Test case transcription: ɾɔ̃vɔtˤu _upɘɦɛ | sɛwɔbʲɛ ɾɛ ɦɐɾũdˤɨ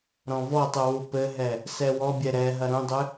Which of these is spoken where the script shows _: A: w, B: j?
A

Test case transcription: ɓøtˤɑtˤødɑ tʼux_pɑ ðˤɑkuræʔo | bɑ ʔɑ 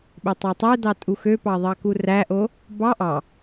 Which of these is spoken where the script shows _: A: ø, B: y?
A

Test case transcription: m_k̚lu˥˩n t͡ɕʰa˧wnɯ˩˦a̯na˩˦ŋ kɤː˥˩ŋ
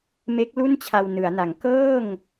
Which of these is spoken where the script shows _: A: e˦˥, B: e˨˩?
A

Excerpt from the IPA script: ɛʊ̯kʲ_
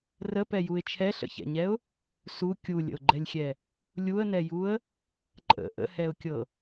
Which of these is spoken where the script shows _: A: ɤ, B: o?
A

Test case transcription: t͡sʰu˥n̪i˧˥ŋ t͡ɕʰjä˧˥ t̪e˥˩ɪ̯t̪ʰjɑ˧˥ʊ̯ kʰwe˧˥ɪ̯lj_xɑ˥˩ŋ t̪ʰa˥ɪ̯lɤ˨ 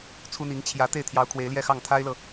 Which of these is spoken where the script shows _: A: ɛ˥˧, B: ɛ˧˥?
A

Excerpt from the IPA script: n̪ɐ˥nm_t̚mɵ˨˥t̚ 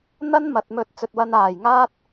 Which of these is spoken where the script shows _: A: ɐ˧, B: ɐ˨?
B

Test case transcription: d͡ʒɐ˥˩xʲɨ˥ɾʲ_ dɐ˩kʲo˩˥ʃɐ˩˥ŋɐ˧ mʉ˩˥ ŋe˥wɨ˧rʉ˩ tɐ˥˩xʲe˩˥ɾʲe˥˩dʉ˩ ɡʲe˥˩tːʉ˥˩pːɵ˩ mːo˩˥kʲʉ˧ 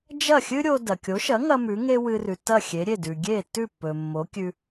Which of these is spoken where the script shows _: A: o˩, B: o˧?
B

